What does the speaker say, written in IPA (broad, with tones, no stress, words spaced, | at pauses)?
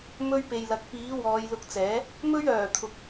mɵ˥ɥpe˧jlɐ˧k̚ piː˨˥ wɔː˨˧jlʊ˧k̚t͡sɛː˨˥ | mɵ˥ɥœː˨˩t̪ʰʊ˨k̚